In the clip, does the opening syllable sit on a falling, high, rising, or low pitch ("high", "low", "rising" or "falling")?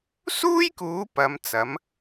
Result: high